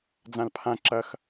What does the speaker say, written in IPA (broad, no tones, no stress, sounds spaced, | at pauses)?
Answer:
d͡z ã l pʰ ã ǁ ɐ x